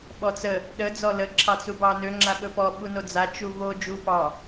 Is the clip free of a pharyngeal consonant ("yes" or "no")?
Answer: yes